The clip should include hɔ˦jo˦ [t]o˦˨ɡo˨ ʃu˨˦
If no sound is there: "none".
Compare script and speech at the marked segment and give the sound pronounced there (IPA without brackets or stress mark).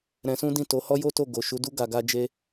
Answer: t